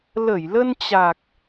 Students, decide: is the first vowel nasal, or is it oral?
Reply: oral